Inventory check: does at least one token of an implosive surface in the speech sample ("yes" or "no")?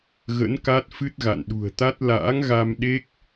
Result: yes